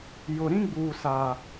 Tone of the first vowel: low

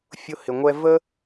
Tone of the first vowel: high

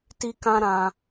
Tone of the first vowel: high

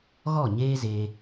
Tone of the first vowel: falling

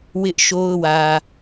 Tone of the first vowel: high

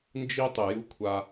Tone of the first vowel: high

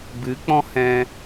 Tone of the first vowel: rising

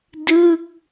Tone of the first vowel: falling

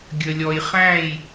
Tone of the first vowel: low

